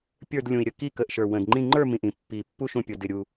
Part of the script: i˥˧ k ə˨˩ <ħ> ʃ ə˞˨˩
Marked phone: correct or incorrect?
incorrect: ʔ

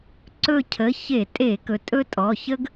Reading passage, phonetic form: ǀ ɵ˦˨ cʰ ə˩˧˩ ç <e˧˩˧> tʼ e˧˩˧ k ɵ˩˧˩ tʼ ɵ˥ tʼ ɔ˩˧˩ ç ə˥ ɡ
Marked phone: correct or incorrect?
correct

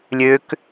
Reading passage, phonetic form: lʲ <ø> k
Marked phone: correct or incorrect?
correct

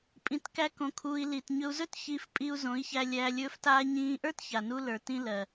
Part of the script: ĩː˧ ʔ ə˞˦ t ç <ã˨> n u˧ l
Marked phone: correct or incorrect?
incorrect: a˨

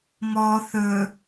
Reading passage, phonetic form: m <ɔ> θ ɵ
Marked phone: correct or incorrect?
correct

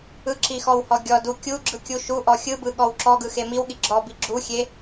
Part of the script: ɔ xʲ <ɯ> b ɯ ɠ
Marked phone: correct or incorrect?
correct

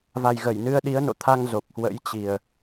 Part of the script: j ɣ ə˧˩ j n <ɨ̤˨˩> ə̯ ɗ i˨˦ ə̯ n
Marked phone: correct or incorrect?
incorrect: ɨ˧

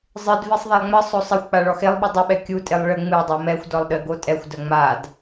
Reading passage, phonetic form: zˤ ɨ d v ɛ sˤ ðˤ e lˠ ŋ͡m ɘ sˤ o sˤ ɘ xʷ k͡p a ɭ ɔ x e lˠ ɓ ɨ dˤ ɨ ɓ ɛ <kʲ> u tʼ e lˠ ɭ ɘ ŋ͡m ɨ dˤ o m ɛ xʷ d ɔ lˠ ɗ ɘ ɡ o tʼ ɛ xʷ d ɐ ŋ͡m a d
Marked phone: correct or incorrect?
correct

